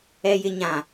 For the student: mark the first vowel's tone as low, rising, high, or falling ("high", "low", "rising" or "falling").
high